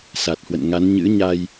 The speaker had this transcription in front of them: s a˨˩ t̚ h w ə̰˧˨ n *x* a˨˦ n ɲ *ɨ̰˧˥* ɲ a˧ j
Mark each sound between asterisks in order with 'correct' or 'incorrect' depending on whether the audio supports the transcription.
incorrect, correct

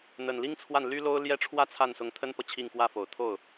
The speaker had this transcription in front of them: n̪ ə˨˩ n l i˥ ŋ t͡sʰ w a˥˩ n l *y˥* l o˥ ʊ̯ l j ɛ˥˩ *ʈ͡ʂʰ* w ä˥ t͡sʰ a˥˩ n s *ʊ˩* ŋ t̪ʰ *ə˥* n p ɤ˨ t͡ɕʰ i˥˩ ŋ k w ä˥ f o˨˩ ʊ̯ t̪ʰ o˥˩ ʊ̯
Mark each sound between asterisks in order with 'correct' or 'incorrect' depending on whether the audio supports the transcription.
correct, correct, incorrect, correct

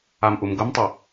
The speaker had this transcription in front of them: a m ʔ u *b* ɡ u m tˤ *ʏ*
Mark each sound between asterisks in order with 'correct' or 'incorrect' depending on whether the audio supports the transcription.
incorrect, incorrect

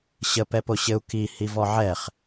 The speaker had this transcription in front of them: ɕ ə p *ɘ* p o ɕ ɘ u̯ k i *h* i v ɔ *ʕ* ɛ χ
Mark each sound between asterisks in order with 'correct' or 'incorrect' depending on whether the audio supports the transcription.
incorrect, correct, correct

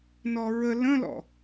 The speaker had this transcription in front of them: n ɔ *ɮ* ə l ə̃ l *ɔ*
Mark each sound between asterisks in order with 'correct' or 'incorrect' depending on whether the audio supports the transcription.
incorrect, incorrect

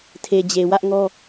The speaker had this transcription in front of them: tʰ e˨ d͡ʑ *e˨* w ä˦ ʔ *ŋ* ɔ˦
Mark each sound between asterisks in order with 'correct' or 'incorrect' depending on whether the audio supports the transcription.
correct, correct

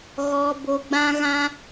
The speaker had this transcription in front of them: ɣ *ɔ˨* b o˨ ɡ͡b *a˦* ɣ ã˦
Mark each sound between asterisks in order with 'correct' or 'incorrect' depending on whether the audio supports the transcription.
correct, incorrect

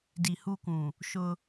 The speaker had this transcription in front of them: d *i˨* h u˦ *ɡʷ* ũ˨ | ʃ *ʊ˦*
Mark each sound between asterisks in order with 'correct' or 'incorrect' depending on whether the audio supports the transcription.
correct, incorrect, correct

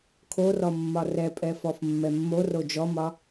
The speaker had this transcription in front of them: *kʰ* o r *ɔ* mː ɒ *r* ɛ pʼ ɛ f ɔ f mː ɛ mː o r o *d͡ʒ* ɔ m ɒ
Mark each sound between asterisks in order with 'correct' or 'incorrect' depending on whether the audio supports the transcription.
correct, correct, correct, correct

